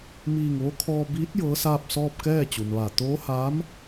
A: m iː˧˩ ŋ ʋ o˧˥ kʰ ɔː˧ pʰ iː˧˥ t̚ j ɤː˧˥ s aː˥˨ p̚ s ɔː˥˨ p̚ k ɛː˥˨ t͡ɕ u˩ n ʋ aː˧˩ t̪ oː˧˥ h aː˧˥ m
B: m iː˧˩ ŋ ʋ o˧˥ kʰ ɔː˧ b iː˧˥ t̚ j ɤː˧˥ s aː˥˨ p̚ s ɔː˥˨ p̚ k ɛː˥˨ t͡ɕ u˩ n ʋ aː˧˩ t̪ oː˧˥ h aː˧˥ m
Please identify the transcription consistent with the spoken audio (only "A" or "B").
B